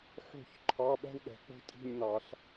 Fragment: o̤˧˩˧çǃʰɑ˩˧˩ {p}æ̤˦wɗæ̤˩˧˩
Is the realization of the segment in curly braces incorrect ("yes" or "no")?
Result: yes